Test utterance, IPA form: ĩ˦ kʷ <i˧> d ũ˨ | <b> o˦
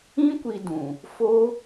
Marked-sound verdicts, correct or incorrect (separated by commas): correct, incorrect